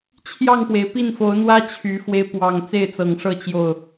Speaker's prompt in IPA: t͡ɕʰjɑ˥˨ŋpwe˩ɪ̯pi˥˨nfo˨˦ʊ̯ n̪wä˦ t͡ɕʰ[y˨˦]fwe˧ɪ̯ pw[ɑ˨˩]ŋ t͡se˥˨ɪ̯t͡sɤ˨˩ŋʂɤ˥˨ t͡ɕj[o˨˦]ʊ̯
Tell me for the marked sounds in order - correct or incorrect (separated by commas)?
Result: correct, correct, incorrect